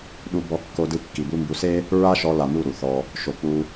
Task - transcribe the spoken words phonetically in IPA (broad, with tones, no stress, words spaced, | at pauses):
ɗu˧bɔ˧ kːo˧dɯ˧kːi˨bu˧ mbu˨˦se˦ | ɹa˦ʃɔ˧la˨ mu˦˨ɾu˨θɔ˧ | ʃo˨ k͡pu˧